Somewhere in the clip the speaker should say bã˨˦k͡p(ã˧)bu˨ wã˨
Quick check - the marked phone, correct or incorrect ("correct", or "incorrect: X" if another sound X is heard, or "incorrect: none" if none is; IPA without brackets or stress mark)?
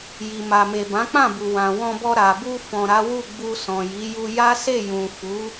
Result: incorrect: ã˦˨